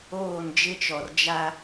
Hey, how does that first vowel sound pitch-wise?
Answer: falling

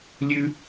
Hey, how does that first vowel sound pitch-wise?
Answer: high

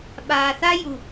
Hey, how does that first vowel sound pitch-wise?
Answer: low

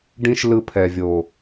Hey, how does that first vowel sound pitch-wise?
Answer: high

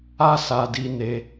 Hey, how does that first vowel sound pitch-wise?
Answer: high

